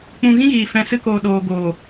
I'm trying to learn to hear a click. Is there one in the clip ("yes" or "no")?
no